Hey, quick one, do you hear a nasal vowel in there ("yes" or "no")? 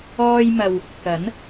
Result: no